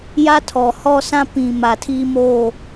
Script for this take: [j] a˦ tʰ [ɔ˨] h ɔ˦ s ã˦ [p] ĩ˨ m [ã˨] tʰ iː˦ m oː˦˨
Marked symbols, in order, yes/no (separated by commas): yes, yes, yes, no